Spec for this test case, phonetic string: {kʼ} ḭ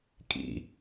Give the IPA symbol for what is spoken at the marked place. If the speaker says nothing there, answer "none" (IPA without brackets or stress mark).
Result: kʼ